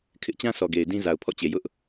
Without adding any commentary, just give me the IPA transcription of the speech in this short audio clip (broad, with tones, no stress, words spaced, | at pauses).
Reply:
kʰɪ˦ʔt͡ɕã˦ sʰɔ˨ɡe˨ɪ̯dĩ˦ za˨ʊ̯pʰɔ̰˦˨t͡ɕe˨ jʊ˦ʔ